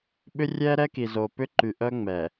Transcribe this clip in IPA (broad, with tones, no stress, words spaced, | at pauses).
ɓʏ˦rʲɛː˦ɾɛ˦ ki˨zoː˨ pʏ˦ǃy˨ ʔœ˦ ŋ͡mɛ˨